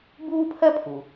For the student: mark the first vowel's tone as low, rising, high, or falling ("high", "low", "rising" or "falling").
high